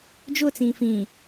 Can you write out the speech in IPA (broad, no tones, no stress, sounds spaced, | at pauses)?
d͡ʒ ʊ t͡s ĩː f ĩ